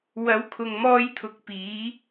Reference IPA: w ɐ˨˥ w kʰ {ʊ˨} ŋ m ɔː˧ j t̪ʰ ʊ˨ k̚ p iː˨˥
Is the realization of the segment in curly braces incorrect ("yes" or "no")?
no